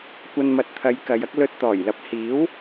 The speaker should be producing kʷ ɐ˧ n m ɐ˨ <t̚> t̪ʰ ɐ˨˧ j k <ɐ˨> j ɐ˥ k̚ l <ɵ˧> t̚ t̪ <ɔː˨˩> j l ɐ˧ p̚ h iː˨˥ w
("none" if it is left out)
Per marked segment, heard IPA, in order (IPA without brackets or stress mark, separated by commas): t̚, ɐ˨˧, ɵ˧, ɔː˨˩